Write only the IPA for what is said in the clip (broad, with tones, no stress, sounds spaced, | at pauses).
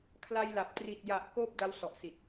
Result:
kʰ l a˧ j l a˨˩ p̚ t r i˨˩ t̚ j a˨˩ ʔ k oː˥˩ p̚ d a˦˥ w s ɔ˨˩ ʔ s i˨˩ t̚